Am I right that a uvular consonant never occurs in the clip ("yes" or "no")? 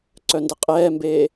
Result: no